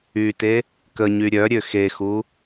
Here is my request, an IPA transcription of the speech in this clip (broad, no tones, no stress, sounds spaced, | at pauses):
y t e | k ə ɲ y ɾʲ œ ɾʲ ø x e x u